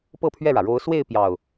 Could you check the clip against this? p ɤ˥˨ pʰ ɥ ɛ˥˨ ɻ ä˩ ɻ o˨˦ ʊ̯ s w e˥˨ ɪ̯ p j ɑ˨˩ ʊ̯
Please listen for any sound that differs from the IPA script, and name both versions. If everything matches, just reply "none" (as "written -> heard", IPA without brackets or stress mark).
none